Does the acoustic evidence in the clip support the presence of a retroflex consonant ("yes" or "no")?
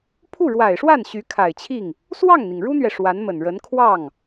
yes